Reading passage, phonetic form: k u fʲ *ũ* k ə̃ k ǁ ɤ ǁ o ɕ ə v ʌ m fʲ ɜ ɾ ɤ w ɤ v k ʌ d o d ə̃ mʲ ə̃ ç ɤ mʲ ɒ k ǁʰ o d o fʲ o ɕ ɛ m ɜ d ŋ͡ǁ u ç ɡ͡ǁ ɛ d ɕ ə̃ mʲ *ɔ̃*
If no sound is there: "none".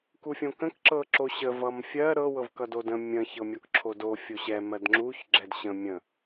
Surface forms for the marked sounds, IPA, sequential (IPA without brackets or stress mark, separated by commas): õ, ə̃